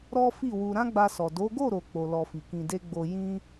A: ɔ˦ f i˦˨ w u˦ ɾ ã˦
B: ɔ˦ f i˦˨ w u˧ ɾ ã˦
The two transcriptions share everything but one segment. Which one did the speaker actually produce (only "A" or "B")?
B